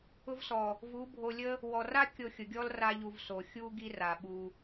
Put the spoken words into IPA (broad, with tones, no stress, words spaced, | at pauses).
ʊ˧vsɔ˨ | vu˨˦bʱo˧lʲə˦ | wɔ˨ra˦ kʲo˧xʲʊ˨ɡʲɔ˦l ra˦ʎu˧vso˨ xʲu˦ ɡi˦ra˨ɓu˧